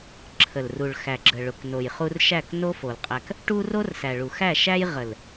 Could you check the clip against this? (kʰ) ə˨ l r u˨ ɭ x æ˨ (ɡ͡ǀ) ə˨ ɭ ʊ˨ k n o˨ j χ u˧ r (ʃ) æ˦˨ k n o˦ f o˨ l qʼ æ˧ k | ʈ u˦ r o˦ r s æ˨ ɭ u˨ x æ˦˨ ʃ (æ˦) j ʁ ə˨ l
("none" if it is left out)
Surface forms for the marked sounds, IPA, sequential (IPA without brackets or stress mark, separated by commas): ǁʰ, ɡ͡ǁ, ʃ, æ˦